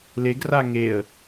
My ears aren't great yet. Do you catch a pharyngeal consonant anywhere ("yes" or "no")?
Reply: no